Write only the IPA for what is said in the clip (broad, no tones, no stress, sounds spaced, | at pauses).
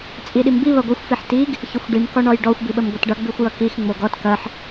t͡sʼ i ɗ i m b i β ɐ ɡʷ ɐ xʷ f i ħ t i ɡ | ç ə xʷ ɖ i m k ɔ ɳ ɔ j ɖ ɔ xʷ b i ɓ ə m ɡʷ ɐ t ɖ ʌ ɡ͡b i xʷ j ʌ k i x ŋ͡m o ɡ ɔ t k ɐ ħ